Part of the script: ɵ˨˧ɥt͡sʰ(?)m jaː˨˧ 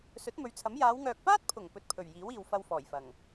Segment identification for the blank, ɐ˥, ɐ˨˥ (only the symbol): ɐ˨˥